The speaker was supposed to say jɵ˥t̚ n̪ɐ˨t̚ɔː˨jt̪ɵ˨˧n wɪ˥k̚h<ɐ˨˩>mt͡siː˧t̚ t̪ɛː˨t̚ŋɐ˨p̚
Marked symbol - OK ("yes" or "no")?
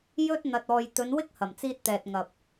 yes